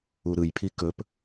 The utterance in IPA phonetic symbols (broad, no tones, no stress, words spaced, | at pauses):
uɾɯjpʰi kɵp